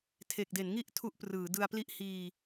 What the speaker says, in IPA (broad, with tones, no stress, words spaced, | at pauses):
tʰe˨˩k̚de˩˦nŋi˥˩ʔ tʰu˦˥ʔprɯː˩˦ dɯ˧a̯pli˥˩ʔ hiː˧